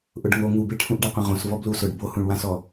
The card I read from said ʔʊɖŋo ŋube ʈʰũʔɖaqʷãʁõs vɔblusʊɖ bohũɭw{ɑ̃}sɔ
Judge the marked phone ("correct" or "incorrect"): incorrect